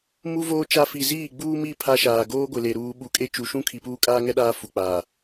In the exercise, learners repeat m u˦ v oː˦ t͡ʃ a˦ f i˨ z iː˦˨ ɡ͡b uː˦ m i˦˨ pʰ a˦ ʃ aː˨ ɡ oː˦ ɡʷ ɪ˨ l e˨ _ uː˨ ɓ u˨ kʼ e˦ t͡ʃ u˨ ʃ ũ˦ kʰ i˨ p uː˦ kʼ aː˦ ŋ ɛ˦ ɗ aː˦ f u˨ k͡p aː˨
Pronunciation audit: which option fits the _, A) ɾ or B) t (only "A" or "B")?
A